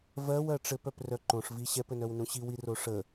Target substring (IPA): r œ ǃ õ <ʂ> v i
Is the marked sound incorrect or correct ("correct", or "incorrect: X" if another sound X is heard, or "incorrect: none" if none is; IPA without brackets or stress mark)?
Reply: correct